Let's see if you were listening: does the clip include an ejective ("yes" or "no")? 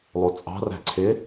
yes